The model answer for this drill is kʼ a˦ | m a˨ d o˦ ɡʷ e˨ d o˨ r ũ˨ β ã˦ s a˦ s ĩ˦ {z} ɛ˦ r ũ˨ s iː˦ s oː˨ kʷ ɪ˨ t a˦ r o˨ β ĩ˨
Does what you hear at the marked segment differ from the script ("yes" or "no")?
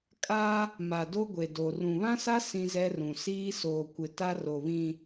no